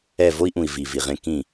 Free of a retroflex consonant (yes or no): yes